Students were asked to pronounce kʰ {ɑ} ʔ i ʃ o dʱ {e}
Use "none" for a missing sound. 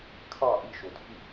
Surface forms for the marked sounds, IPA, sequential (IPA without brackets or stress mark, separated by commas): ɑ, i